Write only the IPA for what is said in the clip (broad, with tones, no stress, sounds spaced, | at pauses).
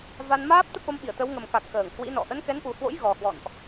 v a˧ n m aː˦˥ p̚ t̪ ə˦˥ p̚ ʔ o˨˦ m ɓ i˧˩ ə̯ t̪ ə˨˦ w ŋ ə˨˩ m k a˨˩ k̚ x əː˧˩ ŋ h w ḭ˧˥ n ɔ̰˧˨ ʔ ə˨˦ n k ɛ˨˦ n ʔ u˨˩ h w o̰˧˥ j ɣ ɔ˨˩ h w ɔ̰˧˨ n ʔ